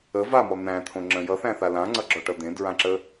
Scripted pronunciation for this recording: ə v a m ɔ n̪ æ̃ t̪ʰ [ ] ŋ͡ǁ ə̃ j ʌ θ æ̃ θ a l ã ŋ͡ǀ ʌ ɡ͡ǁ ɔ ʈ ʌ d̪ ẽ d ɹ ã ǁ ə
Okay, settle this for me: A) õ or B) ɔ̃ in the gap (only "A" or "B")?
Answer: A